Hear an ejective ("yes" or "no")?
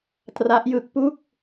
no